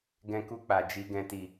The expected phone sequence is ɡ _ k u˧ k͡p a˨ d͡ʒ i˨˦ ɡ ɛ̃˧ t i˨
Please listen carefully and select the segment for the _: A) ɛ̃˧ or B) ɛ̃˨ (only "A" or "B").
A